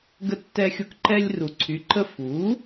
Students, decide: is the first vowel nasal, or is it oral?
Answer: oral